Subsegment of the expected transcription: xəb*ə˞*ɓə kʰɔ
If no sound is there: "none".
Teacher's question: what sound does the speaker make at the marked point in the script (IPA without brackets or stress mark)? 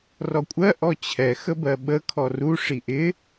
ɜ